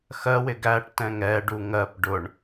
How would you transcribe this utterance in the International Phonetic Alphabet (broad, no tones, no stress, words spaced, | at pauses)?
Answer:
xɜwɪ ɡæʈtɛ̃ŋ ɛɖu ŋɜp ɖʊɳ